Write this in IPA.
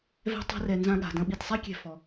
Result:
vɛ̤˥ tˤa̤˦rɛ˨ nzã˥ɠa̤˩dɐ̃˥ ɓi˨tsˤɛ˥kʲɛ̤˨ fɔ˩

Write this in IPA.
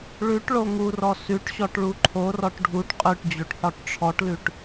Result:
ɭʉʈ ɭoŋurɔ sʉʈɕɔʈ ɭuǃʰorɔʈ ɖʱuʈ qʼʉʈd͡ʑoʈ ħɔʈʈ͡ʂʰɔʈlʉʈ

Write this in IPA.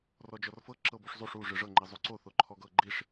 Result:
rɔd͡ʒɔrfɤ ǁɤbuʂzˤuʂ u ʐɯʐɤ ŋ͡ǃizˤuǀo θoǃʰɔɡɤ ɡ͡ǃiʂ

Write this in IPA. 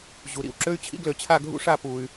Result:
ʑu˩ɾḭ˩wǁø˧y̯t͡ɕʰḭ˧ ɡlø˩t͡ɕʰa˧˩ɡʱṵ˧ʂa˧˩ pu˩y̯

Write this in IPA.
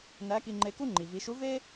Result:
næ˧˥ki˧ŋ͡ǃe˧ku˥ ŋ͡ǃi˩vi˩˧ʃu˧˥ ve˥

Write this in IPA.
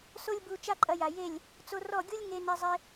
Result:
so˦lʲbu˧ t͡ʃa˦ǃʼɐ˧ja˨je˦˨lʲ | t͡so˧rɔ˦˨ɡʲu˦lʲŋe˧ nɛ˧zˤe˧

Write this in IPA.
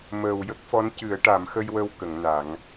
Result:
məː˨˩wjə˦˥k̚fɔ˧˥n cɨ˨˩˦ə̯ʈa˨˩˦mxə˧jwə˧w kə˨˩˦ŋna˨˩˦ŋ

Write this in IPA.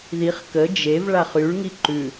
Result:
ðiχ kə d͡ʒev ɭaχyɭŋi ǃʉ

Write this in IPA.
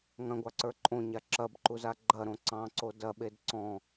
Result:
ŋɐ̃ɡʷɑǀə˞ ǃʼõɲa ǁɐbǃuza ɡ͡ǃɐɾõ ǀɑ̃ǀo dɐɓed ǀɔ̃

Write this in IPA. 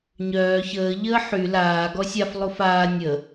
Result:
ɲœː çəː ʎəːħy laː ɡɔsʲaf lˠufaː nʲə

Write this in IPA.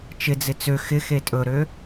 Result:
t͡ʃɪd͡zɪ t͡sø xɪxe tʼɵɾø

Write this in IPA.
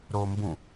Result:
ɾombũ

